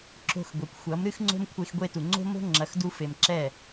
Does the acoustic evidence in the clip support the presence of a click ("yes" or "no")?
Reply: yes